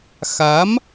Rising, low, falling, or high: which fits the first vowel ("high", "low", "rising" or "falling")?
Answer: rising